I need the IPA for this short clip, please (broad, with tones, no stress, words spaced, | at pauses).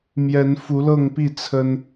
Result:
mjɛ˨˦nfu˨˦lɤ˥˨ŋpi˥˨ t͡sʰə˦n